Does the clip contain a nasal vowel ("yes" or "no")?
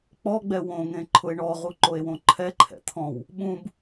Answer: yes